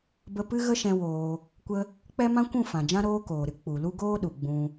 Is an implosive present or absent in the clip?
present